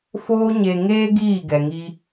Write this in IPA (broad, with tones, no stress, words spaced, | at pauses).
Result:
foː˧ɲe˨ŋeː˧ ɡiː˦˨ɡɛ˨ŋi˧